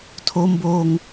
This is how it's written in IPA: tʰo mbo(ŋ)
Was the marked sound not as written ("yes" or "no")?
no